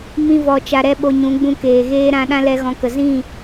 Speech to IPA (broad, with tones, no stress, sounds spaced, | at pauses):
m ĩ˦ v ɔ˧ t͡ʃ a˧ ɾ ɛ˦ ɓ o˧ ɲ ũ˨˦ ɡ͡b ũ˧ k eː˨ ɣ eː˦ ɾ ã˧ ɗ ã˦ l ɛ˧ ɣ ɔ̃˨˦ k ə˨ z ĩ˦˨